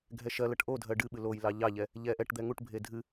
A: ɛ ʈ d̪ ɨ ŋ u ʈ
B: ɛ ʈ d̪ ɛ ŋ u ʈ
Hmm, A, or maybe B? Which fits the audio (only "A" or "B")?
B